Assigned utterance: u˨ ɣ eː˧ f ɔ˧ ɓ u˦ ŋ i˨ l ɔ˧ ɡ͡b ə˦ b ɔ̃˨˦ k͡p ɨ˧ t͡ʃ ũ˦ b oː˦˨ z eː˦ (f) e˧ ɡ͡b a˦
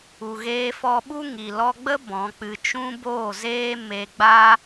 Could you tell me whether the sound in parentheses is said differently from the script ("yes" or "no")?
yes